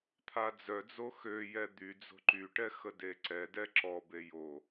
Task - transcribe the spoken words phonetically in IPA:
t̪ʰad͡zœd͡zo xøjɛ d̪yd͡zo̤ ǃyʈɛ xədeǀɛdɛ ǁɔbe jo

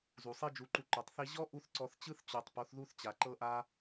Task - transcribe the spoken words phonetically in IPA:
zu˨sˤi˦d͡ʒu˨˦ǃu˧ ǃu˨tˤθi˦ ʑɔ˦ ʔu˦θ ǀɔ˧θ t͡ɕɯ˦θ t͡ɕo˨tˤ po˨˦θðu˦θt͡ɕa˨ ǃɤ˦ʔa˦

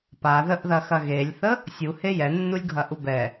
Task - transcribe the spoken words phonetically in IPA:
paðəʔðɐxɐ ɣelʲθə | sʲuhe jɛnːulʲɡʱɐʔu bɛ

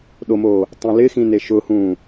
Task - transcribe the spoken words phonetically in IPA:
ɗomoː | tˤɛ̃lɪxĩne ʃʊhũː

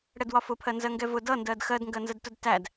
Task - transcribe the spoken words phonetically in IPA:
ɽɛdwɒfʊpʰɜ nzɜŋɡɛvʊ dʌndɜd xɜdŋɡɜnzədtʊd tæd

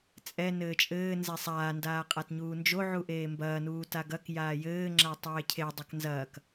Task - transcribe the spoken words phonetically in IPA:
t͡sʼɛ nɘːt͡ʃʼɘː nzesˤaːndaː qʼatɲuːnd͡ʒoʕu ʔeːmbɐːnuː taɡɐk jaːjɘːŋ͡ǁa tˤeːcʰe dˤɐknzɐːk

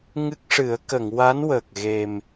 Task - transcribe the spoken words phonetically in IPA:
ŋɨ˦˥k̚ʂɨ˨˩˦ə̯ kə˨˩˨ŋwa˧˥n wəː˨˩k̚ɣe˨˩m

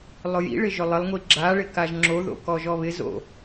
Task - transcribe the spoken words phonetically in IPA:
lˠʊjḭɭɪ ʒʊlˠɪlˠŋʷi ɡ͡ǁaɭɪ kaʒŋ͡ǁoðo̰ kɔʒɔβɪzo̰

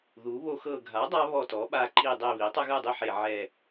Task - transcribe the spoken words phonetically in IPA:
ðu˩˥βo˦xɤ˦˨ ɡʱa˩˥dˤa˦ βɔ˦˨tɔ˩˥ɓa˦ ǃi˦˨ dˤe˦˨βi˩˥ tˤɛ˦ɣɯ˦˨dˤi˦˨ ħe˦˨ ʕɛ˦˨

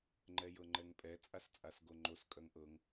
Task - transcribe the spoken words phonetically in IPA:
ŋ͡ǃɛjɤŋ͡ǃɛŋpʼɛ t͡sʼast͡sʼasɡoŋ͡ǃos kʼœŋʔɤŋ

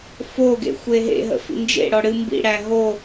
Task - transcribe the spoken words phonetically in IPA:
foɡḛ xʷeɦḛɦə̰ fḭnd͡ʒḛɽɔ ɽɨmbḭɽæ ɦo

